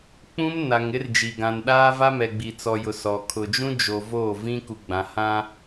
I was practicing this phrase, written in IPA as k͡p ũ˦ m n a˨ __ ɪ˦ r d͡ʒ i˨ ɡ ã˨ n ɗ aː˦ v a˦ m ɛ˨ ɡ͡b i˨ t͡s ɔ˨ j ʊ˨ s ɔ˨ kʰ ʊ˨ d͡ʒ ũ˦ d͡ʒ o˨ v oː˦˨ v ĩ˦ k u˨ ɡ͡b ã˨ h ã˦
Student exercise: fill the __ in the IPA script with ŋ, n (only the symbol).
ŋ